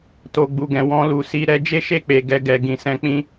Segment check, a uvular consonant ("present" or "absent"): absent